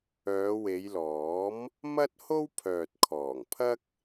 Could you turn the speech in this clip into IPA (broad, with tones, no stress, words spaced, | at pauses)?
œː˨˧we˨˧jlɔː˨˥m | mɐ˥t̚ho˥w pʰœː˨t̚kʰɔː˨˩ŋpʰɐ˥k̚